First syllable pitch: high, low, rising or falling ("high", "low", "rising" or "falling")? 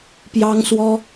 high